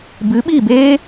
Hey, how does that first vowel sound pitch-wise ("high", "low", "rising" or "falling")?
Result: rising